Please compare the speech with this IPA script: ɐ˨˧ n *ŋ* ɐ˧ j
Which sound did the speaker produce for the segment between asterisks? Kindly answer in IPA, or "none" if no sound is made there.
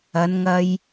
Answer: ŋ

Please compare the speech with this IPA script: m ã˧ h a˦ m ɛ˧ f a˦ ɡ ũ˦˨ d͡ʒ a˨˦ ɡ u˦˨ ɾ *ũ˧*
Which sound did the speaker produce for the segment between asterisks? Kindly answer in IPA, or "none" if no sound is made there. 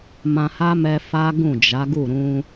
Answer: ũ˧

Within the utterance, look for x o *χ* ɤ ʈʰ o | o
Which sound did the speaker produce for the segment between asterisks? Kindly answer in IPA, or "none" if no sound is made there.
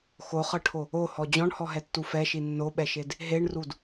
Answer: χ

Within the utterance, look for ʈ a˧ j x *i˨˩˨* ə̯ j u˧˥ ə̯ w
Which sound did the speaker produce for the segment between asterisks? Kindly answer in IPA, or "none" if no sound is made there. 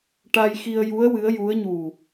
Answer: i˧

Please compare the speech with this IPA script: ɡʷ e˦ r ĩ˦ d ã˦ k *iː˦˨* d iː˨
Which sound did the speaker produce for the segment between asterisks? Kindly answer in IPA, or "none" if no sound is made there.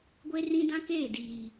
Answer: eː˦˨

